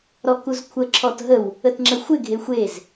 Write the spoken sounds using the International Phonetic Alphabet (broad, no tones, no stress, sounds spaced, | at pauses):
ɾ ɔ k u z kʷʰ ə ǁʰ ɔ t ɦ ə w | ə t ŋ͡ǁ ə xʷ ɪ ɡʱ e xʷ e z